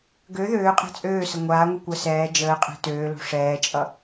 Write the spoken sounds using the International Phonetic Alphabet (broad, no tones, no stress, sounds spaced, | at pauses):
ɡ ø ð øː qʼ e̤ t͡sʼ øː s ə ŋʷ aː ŋʷ ɛ kʷ əː s ɛː d͡ʒ əː qʼ ɛ̤ t øː l o̤ ʂ ɛː t͡ʃʼ ʌ